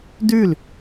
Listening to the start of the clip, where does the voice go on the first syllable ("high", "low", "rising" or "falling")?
falling